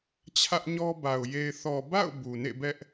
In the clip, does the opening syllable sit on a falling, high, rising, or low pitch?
high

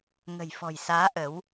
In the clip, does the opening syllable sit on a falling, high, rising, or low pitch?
low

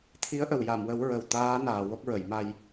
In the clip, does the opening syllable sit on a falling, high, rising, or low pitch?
rising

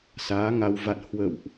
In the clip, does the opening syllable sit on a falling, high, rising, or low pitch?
rising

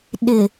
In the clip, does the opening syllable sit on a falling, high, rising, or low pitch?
low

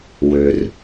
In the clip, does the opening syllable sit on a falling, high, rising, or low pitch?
low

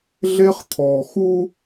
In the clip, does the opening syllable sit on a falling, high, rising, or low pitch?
high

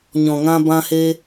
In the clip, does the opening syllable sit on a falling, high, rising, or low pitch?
low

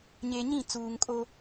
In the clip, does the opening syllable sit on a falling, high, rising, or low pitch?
low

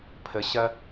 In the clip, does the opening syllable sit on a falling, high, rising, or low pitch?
low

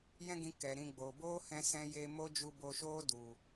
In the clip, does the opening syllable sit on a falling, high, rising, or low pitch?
high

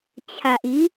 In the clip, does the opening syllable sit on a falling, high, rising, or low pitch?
low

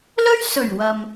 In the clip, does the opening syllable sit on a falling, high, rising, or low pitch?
high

